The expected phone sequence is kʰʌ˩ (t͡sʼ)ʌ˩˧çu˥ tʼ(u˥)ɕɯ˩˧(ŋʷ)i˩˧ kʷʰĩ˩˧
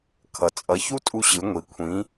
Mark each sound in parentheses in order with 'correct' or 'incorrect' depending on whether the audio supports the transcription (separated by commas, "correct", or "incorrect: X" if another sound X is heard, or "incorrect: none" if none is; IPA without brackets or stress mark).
correct, incorrect: u˧, correct